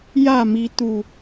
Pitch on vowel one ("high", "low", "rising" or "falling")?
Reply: falling